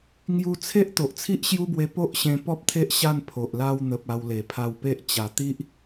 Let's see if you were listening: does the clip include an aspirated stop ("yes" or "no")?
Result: yes